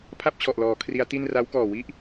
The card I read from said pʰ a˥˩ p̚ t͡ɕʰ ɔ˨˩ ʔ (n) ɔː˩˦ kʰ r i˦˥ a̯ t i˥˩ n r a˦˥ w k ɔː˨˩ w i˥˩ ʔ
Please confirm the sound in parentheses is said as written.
no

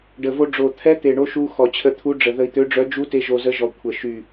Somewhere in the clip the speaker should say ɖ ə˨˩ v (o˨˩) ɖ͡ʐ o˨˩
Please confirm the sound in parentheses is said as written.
no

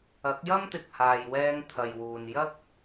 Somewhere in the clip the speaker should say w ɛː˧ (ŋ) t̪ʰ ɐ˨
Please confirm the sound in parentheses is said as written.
yes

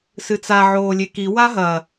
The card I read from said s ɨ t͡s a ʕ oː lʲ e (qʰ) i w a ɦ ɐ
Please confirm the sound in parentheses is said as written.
no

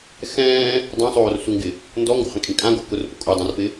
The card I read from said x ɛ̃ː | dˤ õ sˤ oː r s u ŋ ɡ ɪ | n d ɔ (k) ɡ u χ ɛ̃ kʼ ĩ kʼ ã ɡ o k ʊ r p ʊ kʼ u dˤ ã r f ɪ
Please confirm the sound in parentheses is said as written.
no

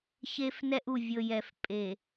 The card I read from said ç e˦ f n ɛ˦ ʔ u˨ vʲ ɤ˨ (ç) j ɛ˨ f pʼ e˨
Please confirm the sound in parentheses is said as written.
no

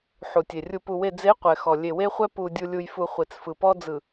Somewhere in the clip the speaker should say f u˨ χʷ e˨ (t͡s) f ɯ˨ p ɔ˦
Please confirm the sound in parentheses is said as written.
yes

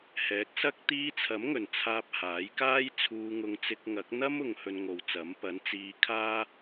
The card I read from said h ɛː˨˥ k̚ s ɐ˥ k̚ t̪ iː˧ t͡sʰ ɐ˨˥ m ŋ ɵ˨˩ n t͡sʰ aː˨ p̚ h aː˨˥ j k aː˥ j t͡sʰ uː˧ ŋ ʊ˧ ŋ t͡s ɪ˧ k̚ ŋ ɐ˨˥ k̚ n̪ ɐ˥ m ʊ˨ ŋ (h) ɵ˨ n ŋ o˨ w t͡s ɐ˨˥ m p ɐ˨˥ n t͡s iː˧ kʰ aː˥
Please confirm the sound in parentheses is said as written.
yes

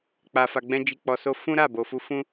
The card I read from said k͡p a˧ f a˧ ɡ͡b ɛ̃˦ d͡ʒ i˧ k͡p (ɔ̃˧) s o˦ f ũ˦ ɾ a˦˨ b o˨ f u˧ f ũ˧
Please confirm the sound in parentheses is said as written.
no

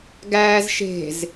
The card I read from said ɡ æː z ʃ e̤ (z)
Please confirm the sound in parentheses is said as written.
yes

